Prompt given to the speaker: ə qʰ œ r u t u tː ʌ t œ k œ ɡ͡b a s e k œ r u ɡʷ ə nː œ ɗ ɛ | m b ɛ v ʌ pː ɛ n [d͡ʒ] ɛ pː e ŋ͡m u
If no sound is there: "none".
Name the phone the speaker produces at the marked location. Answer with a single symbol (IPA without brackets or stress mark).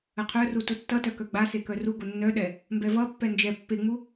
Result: d͡ʒ